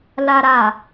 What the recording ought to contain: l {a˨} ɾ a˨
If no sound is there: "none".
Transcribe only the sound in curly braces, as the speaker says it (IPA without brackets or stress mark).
a˨